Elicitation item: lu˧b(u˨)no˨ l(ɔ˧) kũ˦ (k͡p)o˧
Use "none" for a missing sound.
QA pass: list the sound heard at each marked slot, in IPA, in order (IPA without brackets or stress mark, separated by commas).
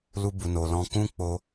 u˨, ɔ̃˧, k͡p